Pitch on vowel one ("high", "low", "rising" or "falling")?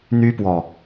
high